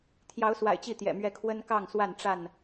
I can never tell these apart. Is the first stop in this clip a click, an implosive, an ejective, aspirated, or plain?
aspirated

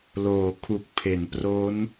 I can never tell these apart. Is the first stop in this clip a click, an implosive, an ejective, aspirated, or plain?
aspirated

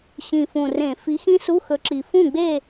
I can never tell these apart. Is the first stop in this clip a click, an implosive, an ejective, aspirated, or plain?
click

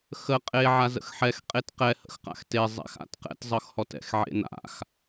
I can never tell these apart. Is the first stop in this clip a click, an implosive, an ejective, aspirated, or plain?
ejective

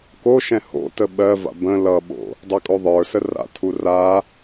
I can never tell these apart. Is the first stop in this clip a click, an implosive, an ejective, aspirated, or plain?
plain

